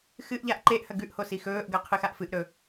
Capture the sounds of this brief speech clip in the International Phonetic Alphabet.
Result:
xɨʔʎaʔ ǃeʔhɐ ɡʉʔho sixɵːʔɡɐ qʰɨxaʔfɨʔɾɵ

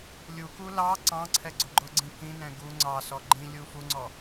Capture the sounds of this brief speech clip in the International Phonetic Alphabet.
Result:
lʲuku lɑ ǀɑ̃ǀʰɛɡ͡ǀʊ ɡ͡ǃʊɡ͡ǀĩ kĩnɛ̃ ɡu ŋ͡ǀɑsɔ ɡ͡ǃĩlʲu fuŋ͡ǀɔ

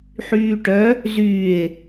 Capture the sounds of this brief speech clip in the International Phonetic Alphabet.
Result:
ħyːʈœ | zyːe̯

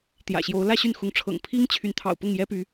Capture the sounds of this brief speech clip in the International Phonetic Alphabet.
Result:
t̪jä̰˨˩ɕjo˨˦ʊ̯ lä˥˨ɕy˥˨nxʊ˨˦ŋ ʈ͡ʂʰɤ̰˨˩ŋpʰi˦ŋt͡ɕʰy˨˦n t̪ʰɑ̰˨˩ʊ̯pʊ˥˨ŋjɛ˦py˨˦

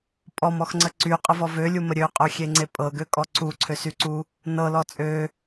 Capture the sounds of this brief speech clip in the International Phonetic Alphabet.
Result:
pʼɔmɔxŋ͡ǀə ǀyqʼəvɔ vølʲumə ɾʲøqʼøxʲeŋ͡ǀe pʼɤɡøkʼɔ ǀuǀʰøsyǀu | nɤlɔ t͡sʼø

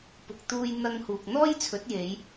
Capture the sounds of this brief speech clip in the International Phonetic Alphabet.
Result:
pʊ˨k̚t̪uː˧jn̪ɐ˧ŋ huː˨k̚n̪ɔː˥jt͡sʰɵ˨˥t̚ je˨˧j

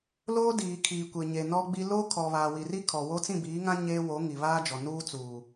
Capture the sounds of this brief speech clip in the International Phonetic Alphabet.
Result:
loː˦diː˨ kʰiː˨kʷe˨ɲe˨ nɔ˦ɡ͡bi˦ loː˦kʰɔ˨βaː˨ wi˨ri˦ kʰɔ˨wo˦ t͡sĩ˦˨biː˨˦ŋã˦ ɲeː˦wo˨˦ ŋi˨βaː˦d͡ʒɔ˨ nuː˦t͡suː˨

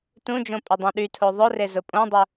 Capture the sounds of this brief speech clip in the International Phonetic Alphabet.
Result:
tũd͡ʒõ pʼɪdˤõɗytʰo ðˤʊre zʊpʼõdˤʊ

